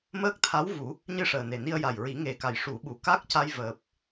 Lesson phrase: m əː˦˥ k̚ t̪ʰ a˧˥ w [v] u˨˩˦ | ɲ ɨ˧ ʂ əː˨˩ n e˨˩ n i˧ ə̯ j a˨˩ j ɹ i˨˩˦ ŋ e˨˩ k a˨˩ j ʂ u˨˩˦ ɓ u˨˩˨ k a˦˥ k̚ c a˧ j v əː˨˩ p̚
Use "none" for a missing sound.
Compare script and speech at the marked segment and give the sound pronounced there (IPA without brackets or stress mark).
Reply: v